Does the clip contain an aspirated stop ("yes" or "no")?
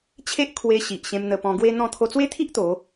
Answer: yes